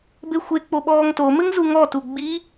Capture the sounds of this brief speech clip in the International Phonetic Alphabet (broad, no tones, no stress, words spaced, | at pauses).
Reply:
bexʷe k͡poɓɔːŋto mɘŋzuŋɔ tuɡ͡bi